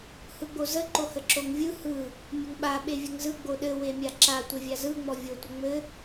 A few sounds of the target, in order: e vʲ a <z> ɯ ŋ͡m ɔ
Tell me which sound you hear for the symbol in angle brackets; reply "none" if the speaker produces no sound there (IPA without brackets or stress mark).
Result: z